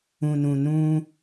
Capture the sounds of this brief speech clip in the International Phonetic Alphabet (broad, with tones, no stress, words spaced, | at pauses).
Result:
ũ˨nũ˨ nũ˦